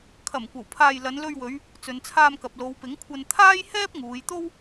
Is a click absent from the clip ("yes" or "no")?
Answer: yes